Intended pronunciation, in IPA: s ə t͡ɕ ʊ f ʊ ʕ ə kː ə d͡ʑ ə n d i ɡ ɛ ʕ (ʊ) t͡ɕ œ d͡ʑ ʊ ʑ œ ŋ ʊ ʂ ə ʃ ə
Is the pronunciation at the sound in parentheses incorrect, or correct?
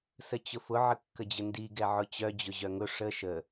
correct